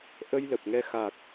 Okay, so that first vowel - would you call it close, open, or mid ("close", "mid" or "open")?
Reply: mid